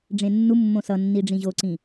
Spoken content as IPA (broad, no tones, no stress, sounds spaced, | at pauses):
ɖ͡ʐ ẽ nː u mː õ s ʌ nː i ɖ͡ʐ ĩ ʑ o ǀ ĩ